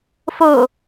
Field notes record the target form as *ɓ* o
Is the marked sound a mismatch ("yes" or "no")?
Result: yes